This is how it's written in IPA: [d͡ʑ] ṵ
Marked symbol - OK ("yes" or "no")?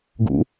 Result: no